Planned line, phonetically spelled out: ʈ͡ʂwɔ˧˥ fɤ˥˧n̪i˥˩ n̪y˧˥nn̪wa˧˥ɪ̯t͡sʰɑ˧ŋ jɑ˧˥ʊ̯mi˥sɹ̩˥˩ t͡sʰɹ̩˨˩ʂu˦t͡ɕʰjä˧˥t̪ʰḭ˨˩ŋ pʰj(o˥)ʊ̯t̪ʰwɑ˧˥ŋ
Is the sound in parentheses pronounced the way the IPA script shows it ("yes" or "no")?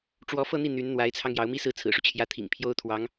yes